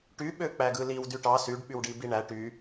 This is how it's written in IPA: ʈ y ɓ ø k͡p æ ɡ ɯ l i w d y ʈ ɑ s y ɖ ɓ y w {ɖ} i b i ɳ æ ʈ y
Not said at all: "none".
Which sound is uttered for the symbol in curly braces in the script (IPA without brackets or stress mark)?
ɖ